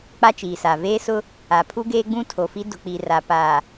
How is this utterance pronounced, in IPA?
k͡pa˦t͡ʃiː˨sa˨ veː˦sʊ˦ | a˨ pʰu˦ɡeː˦ɡ͡bũ˦ tʰo˨fi˦ dʊ˨k͡pi˨ra˨ paː˨

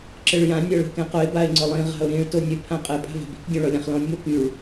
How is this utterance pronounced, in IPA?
ǁɘɭjã nʲɔɭi̤kɛ̃qʊɪ̯ baɪ̯ŋ͡ǀʊlˠĩ ʁa̤ʊ̯ɾĩɭ tonʲʊ pʰãqʼɘ pʼa̤va̤bi̤k dʲõɭɔlʲãχlɔ̃nʲ mokyɭ

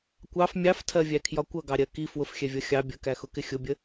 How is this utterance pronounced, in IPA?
kʷɑf mʲɑftʰɜvʲækʰjɒ kʷʌɡɑɾʲɜ ki fwʊfxʲɛvʲʌ xʲɑ bʲəkæxʊkɪ xʲʊbʲə

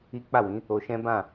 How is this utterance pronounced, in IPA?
i˦ k͡pa˦˨wĩ˨˦ | o˧ʃɛ̃˦bã˦˨

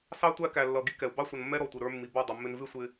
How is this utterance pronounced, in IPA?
sɑ˦ tʷæ˦kæ˨lːʌ˨ ɡi˦kɛ˨u̯ bɑ˦sʷʌ˨nmːɛ˦ ɾɔ˨tʷɪ˨ɾə˞˦mːi˨ bʌ˦˨ dˤɪ˨mːɪ˦n vɪ˦sʷɪ˨

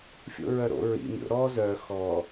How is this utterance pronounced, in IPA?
fʲo̰ɹœɾo̰ ɹḭ mʲo̰ ɾɔ zœ xɔ

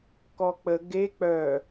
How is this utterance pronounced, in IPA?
kɔk͡pə ɡe k͡pœ

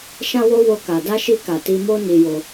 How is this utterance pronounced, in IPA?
ʃã˦wo˦ wo˦ka˧ da˦ʃi˦ ka˧ ti˦ mo˦ni˧jo˧

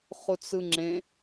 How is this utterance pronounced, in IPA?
χut͡sɯŋ͡ǁẽ

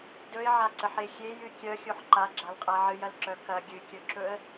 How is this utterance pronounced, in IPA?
dɵɪ̯ʕaǀəħe xʲejɨ kʲœxʲoħ ǃaɡ͡ǁalqʼa ʕɨjɐlǁœ kɐ ɡʲɨkʲɵǁɵə̯

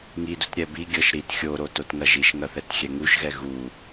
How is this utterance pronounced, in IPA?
ŋidut ɾʲɛbiɡʲɤʃ ɾit xʲoɾo totŋɐʒiʃŋɐ θɛtxʲɛŋuʃɣɛ ɣu

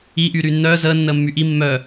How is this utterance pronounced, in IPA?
i ʔyːɾyːnːœː zəː nːəːmːyʔi mːœː

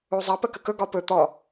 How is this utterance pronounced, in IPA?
ozˤɐ pəkəkɵ ɡɒpɵ t̪ɔ

